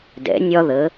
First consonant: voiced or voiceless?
voiced